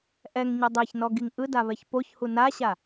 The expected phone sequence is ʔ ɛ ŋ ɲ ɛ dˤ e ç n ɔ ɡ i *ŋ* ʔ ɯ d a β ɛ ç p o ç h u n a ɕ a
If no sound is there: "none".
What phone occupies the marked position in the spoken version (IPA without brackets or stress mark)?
ŋ